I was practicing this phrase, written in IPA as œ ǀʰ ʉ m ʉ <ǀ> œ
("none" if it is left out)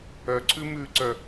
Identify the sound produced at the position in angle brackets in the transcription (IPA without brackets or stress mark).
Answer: ǀ